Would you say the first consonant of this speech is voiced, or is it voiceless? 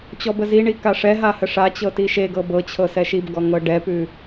voiceless